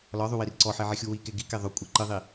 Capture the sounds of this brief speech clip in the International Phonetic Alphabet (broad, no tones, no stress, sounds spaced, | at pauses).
l ɒ ðˤ u w i r ǀ ɔ ħ e ʕ e xʲ u w i k e ɡ i k e ðˤ o kʷʼ e ǃ ɨ ðˤ i